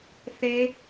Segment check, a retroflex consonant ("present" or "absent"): absent